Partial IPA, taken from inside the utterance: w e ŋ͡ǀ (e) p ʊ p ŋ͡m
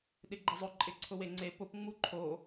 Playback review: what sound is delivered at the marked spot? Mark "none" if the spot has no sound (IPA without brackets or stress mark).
e